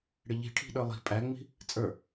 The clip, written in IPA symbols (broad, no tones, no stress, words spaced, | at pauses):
ɽɪʎi̤ʈʰi̤ ɗə˞lˠi̤ pʼæŋ͡mi̤ | t͡sʼə˞